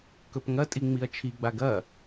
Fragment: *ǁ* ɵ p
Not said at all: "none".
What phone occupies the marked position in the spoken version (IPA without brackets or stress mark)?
k